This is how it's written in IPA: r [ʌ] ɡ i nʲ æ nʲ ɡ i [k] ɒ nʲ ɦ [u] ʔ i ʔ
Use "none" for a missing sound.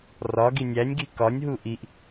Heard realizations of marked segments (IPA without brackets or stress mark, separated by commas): ɒ, k, u